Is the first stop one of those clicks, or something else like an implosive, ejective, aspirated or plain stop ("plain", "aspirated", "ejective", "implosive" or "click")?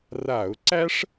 click